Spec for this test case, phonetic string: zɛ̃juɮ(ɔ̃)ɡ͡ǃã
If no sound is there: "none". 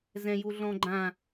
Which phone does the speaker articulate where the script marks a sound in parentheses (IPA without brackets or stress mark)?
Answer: ɔ̃